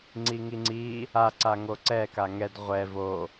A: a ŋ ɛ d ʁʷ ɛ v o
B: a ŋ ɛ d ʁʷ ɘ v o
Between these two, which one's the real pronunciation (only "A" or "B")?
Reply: A